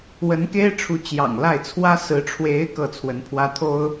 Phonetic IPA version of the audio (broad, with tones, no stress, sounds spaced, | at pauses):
w ə˧˥ n k e˥ ɪ̯ ʈ͡ʂʰ u˧˥ t͡ɕ j ɑ̰˨˩ ŋ l a˥˩ ɪ̯ t͡sʰ w ä˥ s ɹ̩˧˥ ʈ͡ʂʰ w e˧˥ ɪ̯ k ɤ˥˩ t͡sʰ w ə˧˥ n pʰ w ä˥ t̪ʰ o˥ ʊ̯